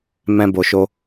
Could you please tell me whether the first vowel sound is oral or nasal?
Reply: nasal